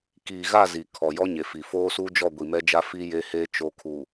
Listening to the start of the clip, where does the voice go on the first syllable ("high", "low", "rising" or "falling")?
low